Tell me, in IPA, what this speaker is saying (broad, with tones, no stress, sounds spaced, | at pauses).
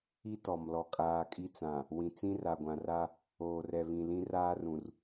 i˦ t ɔ˨ m l ɔ˨ kʼ aː˨ kʼ i˦ t͡s ã˨ | w ĩ˨ t͡s ĩ˦ r a˨ ɡʷ ã˨ r a˦ | oː˨ r ɛ˨ β ĩ˨ l ĩ˦ r aː˦ r ũ˨ r